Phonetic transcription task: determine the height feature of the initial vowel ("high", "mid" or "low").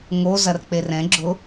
mid